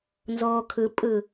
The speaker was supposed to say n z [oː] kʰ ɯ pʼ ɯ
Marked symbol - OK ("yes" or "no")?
yes